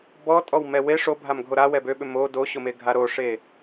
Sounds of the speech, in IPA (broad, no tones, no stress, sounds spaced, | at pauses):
b ɔ tʼ ɔ w m ɛ w e ʂ o bʱ a m ɡʱ o ɾ a w ɛ b ø ɓ ʏ m o d o ɕ ʊ m e ɡʱ a ɾ o ʂ e